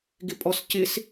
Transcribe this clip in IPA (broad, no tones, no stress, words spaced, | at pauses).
ɡɪpʼɔscɪs